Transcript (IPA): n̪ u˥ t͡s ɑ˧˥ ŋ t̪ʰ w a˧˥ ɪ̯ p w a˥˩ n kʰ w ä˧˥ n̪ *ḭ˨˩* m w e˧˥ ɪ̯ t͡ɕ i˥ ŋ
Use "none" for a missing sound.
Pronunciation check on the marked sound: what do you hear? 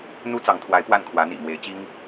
ḭ˨˩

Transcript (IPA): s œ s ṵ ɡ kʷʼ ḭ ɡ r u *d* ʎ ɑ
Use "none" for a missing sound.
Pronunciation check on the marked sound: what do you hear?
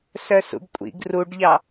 ɖ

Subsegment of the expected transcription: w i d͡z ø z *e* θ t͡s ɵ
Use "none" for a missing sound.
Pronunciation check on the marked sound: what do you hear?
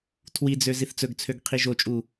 i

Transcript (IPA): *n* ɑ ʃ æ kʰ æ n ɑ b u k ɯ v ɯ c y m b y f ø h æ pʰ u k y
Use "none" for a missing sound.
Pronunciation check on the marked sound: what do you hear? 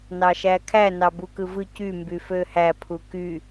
n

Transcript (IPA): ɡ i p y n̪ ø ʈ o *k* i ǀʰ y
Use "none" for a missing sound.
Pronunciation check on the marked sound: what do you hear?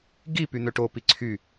p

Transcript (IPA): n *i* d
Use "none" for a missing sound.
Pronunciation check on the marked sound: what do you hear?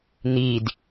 i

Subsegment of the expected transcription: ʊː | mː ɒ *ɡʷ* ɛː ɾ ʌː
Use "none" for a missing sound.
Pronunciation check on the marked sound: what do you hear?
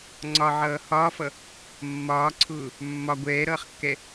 ɡʷ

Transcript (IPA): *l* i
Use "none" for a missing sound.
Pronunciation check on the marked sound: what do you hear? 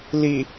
l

